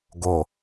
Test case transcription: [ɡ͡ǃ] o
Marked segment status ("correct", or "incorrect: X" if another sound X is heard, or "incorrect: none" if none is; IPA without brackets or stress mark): incorrect: ɡ